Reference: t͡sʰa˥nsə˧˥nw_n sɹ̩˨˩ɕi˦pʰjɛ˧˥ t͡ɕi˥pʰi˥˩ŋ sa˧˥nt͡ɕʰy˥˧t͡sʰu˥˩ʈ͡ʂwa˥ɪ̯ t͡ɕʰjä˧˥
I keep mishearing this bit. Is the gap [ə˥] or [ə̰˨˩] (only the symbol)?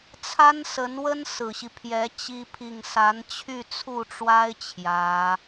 ə˥